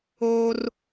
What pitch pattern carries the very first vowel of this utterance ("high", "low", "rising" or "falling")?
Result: high